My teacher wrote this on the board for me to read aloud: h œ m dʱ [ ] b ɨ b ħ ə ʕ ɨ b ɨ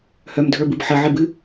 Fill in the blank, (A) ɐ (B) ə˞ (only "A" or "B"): B